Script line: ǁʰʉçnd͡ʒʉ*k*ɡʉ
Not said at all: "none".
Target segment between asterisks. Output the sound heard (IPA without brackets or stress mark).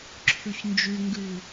ŋ